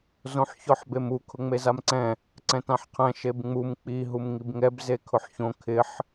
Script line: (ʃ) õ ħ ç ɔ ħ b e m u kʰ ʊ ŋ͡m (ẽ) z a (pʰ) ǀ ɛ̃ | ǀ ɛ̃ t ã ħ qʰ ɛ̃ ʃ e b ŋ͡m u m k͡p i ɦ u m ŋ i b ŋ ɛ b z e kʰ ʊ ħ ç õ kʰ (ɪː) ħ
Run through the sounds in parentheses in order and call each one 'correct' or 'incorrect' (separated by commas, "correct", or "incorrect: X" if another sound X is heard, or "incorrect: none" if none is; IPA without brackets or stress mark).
incorrect: z, incorrect: e, incorrect: m, incorrect: ɪ